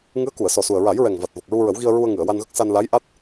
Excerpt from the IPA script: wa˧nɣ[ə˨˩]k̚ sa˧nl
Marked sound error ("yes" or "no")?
yes